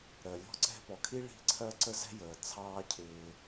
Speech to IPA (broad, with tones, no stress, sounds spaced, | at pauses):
ɾ ɜ˩ lʲ ɔ̤˦ ǀ ɛ̤˦ p ɔ˩ kʰ i˥ ɭ i̤˦ ǀʰ ɜ˥ ǀ ə˥ z ɛ̤˥ j əː˩ t͡sʰ ɑː˦ cʰ ɪː˨